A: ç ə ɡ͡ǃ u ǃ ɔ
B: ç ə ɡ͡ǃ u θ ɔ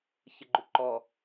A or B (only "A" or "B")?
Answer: A